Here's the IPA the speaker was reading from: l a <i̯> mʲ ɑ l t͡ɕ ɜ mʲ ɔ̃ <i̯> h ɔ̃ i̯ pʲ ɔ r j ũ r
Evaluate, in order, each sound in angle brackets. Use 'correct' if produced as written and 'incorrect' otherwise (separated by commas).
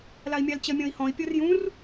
correct, correct